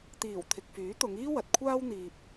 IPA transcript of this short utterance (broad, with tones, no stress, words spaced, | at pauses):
t̪iː˨˩w t̪ʰɪ˨k̚fyː˨˥t̪ʊ˨˧ŋiː˥ wɐ˨t̚kʷʰaː˥w n̪iː˨p̚